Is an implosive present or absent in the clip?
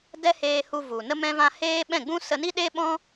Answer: present